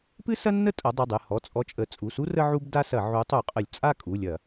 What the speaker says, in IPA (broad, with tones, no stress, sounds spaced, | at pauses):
p ɨ˥ s ɐ˥ nː ə˥˧ tʼ ɐ˩˧ dˤ ɨ˩˧˩ dˤ ɨ˩˧˩ h ɔ˩˧˩ t͡sʼ ɔ˨˥ t͡ʃʼ ə˩˧˩ t͡sʼ u˩˧˩ s u˥ r ə˥ ʕ u˥ b d a˥ s ɐ˧˩˧ ʕ u˨˥ tˤ u˧˩˧ qʼ ə˧˩˧ lʲ t͡sʼ a˥˧ kʼ u˩˧˩ lʲ ɐ˧˩˧